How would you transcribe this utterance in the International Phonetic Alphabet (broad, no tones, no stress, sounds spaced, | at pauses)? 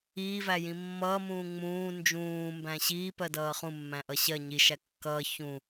iː v æ j ĩ mː ʌː m ũː ŋ͡m ũː n d͡ʒ ũː m b æ̃ ɕ iː p ɜ d ʌː χ ũ mː æ̃ ʔ ʌ ɕ ɜ ɲ i ʃ æ kː ʌː ç ũ